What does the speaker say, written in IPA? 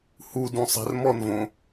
h u d ũ sˤ ɛ̤ r m ɔ n v õ

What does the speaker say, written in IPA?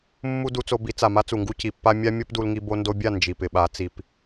mː u˦ d u˧ t͡s o˧ b i˨˦ t͡s a˨ m a˦ t͡s u˨ ŋ ɡ u˦ c i˨˦ pː a˦ mʲ a˦ mʲ o˦ p d u˧ l ŋ i˧ b o˧ n d o˧ bʲ a˦˨ n d͡ʒ i˨ p ɪ˨ ɓ a˨˦ t͡s i˧ p

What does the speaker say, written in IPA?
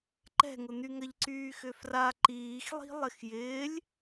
ǃ ɛ̤ ŋ ʊ n̪ y ŋ ɐ ʎ ǀ yː x ʏ f r a ǃ iː x lˠ i̤ lˠ ɪ x j ɪː lʲ

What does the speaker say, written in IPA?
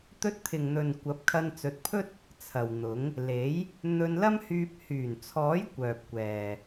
t̪ ɵ˧ t̚ t̪ʰ ɪ˨ ŋ n̪ ɵ˨ n kʷ ɐ˨˥ p̚ kʰ ɐ˧ n t͡s ɵ˨˥ t̚ pʰ ɵ˥ t̚ | t͡sʰ ɐ˨ w n̪ ʊ˨˥ ŋ | l e˨˥ j | n̪ ɵ˧ n l ɐ˥ m h yː˧ p̚ h yː˨˩ n t͡sʰ ɔː˨˥ j kʷ œː˨ p̚ kʷ ɛː˨

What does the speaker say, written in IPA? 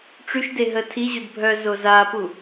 ʈ͡ʂ y ʃ d e ɦ ə tʰ i ʑ u d bʱ œ z o z a p u

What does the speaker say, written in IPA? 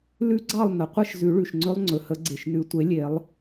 l ʉ˦˥ ɡ͡ǀ ɑ˥˨ lˠ n̪ ə˩ qʷ ə˥˨ ʃ z ʉ˨˩˦ ɭ ʉ˩ ʃ ŋ͡ǀ ɵ˦˥ lˠ ŋ͡ǀ ɵ˩ h ə˨˩˦ ɡ͡ǀ e˩ ʃ n ʉ˨˩˦ tʷ e˩˥ lʲ e˨˩˦ lˠ

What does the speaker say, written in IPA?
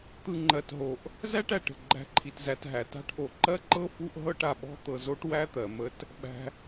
t̪ ɯ˨ ŋ͡ǃ ɜ˩ t ɦ o˩ ʔ | z æ˥ ʈ æ˩ ʈ ə̤˩ ɡ͡ǃ æ̤˨ ǃʰ i˩ t z æ˨ t ɦ æ˩ t a̤˥ ʈ ʔ o˩ ǃ ɜ˥ ǃ ɤ˥ f u˦ ʔ ɦ ɤ˦ ʈ a˩ ɓ ɔ̤˥ t̪ ɤ˨ z o˥ ʈ w æ˥ t̪ ɜ˩ m ə˦ t | ɓ æ̤˨

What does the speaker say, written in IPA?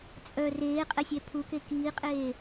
t͡sʼ œ r eː qʼ ɛ sʲ ɛ pʰ u k e k iː qʼ eː

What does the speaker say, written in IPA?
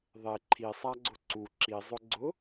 ðˤ e ǃʰ i sˤ a ɡ͡ǀ ʊ ǀ u ǁ i zˤ ʊ ɡ͡ǀ ʊ

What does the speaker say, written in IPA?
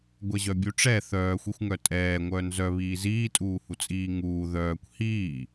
ɡʷ ɛ ʑ œ bʲ u ʈ͡ʂ ɛ θ œː xʷ i xʷ ŋ œ tʼ ɛː ŋʷ œː n z œ β iː z iː tʼ uː h u t͡sʼ iː ŋ uː ð œː kʷ h iː

